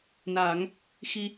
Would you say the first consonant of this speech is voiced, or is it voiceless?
voiced